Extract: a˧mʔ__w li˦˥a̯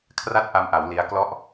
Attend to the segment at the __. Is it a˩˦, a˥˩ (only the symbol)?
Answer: a˩˦